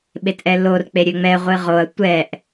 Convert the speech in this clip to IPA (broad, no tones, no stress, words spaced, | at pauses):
ɓetʔɛlor k͡peɾʲøŋ͡mɛ ʁʷɨʁoɐ̯ tʷɛʔ